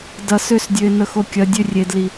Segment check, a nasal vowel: absent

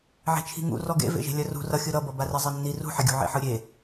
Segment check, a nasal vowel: absent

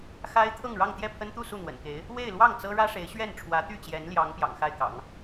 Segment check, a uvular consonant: absent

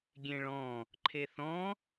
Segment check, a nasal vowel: present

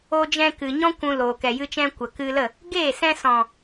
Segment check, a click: absent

